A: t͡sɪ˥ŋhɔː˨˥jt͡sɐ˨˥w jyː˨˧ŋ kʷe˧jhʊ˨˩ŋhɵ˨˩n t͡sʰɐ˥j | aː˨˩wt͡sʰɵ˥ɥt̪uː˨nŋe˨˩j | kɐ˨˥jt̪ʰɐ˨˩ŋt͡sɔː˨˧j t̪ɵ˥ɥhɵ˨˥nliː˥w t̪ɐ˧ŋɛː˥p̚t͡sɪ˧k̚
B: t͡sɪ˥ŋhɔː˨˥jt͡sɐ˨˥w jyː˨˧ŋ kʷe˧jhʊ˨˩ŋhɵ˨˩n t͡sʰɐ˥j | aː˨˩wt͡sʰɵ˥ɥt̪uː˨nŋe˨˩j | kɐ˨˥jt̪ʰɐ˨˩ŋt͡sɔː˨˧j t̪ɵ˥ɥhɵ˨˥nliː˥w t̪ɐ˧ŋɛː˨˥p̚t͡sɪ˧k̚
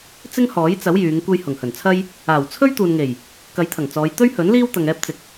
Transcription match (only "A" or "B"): A